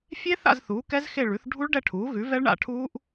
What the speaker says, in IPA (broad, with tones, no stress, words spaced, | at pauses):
fʲe˦˥θa̰˦˨z θuː˩˥kɛ˦˥zxe˦˨ ɭʉ˩˥θ ɖʱu˦˥ɭɖɛ˦˨ʈʰuː˩˥ɣʉ˩˥ vɛ˦˥ɭɳa̰˦˨ʈʰuː˦˥ʔ